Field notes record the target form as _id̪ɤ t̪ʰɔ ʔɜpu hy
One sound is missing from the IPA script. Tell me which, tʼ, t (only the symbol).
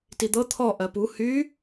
t